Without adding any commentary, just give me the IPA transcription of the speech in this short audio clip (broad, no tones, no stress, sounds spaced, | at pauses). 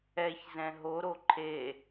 ɛ ç z ɛ̃ ɦ o ɾ o ǃʰ e